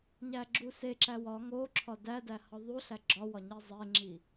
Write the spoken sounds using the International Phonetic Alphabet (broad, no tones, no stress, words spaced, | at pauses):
ɲæɡ͡ǁuseǁæ wɒ ŋo ǁʰɒdædæ hɒðˤuɬæ ɡ͡ǁɒwɒ ɲizˤeŋ͡ǁi